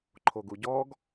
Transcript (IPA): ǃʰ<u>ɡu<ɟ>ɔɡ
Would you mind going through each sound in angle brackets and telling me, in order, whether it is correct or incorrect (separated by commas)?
incorrect, correct